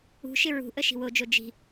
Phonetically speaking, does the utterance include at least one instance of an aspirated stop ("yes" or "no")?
no